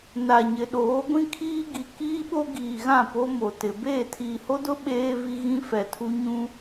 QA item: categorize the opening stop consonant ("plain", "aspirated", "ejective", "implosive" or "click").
implosive